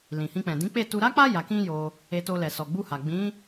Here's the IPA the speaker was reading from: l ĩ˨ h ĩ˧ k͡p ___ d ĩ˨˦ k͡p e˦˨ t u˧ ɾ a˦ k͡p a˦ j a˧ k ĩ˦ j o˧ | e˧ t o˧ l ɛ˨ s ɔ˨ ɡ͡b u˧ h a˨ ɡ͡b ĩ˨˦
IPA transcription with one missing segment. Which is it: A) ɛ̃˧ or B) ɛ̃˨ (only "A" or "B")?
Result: B